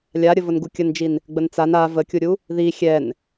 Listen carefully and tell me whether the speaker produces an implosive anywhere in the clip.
no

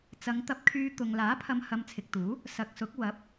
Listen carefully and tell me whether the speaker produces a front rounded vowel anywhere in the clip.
yes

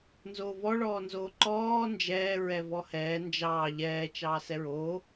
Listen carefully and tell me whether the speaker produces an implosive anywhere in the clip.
no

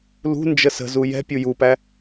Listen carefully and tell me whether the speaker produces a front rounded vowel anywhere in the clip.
no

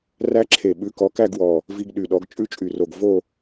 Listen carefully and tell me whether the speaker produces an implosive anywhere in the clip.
yes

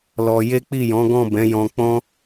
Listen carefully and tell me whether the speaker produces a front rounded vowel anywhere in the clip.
no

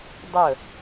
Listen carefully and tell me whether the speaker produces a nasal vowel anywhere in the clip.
no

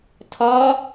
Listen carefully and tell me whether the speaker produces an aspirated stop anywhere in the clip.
yes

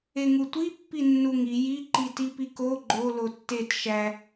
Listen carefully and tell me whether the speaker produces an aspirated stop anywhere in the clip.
no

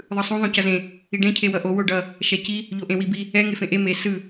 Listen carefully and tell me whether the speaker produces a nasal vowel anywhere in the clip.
yes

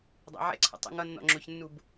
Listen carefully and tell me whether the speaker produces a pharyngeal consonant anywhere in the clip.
yes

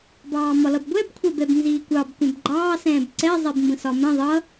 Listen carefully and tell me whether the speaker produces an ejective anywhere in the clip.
no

